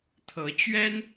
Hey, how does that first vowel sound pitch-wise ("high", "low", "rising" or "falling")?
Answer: rising